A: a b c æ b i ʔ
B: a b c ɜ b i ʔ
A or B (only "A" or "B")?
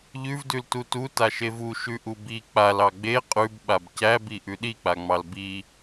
A